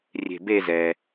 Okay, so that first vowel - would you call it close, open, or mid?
mid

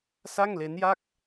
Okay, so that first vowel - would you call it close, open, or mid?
open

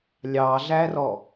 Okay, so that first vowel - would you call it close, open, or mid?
open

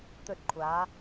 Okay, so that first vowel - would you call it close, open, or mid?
mid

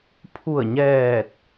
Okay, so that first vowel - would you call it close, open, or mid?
close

